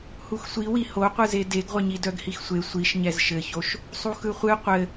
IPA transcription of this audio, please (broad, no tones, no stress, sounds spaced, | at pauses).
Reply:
h u x sʷ i w i h o qʷ ɯ z e d e ɡ ʁʷ ɘ ɲ i d œ ɡ h i x sʷ e sʷ i ʃ ɲ ɛ z ʃ ɘ ç o ʃ | sˤ u x ɯ χʷ ɨ qʷ ɘ